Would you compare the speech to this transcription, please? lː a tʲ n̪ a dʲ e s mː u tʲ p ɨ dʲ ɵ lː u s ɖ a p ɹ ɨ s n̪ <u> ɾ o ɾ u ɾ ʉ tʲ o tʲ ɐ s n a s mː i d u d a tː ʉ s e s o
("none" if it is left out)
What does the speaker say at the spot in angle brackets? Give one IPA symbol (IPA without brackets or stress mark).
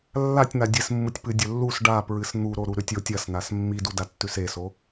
u